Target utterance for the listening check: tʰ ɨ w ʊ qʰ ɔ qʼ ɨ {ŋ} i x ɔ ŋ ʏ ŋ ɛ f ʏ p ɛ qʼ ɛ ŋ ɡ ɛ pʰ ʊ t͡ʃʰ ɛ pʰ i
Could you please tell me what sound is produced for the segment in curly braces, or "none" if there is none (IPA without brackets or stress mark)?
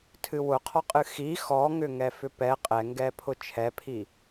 x